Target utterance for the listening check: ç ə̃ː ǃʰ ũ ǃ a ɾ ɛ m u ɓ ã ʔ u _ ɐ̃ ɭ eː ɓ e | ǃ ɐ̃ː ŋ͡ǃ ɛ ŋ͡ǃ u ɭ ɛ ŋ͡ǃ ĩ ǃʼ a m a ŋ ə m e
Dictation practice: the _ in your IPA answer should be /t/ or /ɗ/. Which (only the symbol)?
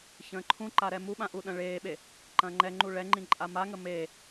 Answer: ɗ